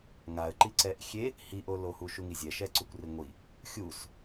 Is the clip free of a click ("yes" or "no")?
no